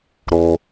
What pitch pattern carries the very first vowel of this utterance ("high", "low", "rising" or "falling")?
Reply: high